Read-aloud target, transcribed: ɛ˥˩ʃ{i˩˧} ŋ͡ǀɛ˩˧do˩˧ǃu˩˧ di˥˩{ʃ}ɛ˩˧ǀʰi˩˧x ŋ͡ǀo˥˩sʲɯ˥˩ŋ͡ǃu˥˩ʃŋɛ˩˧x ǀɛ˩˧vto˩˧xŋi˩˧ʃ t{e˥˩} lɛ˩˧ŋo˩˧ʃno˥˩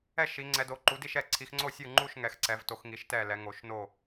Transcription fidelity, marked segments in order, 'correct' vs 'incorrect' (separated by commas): correct, correct, incorrect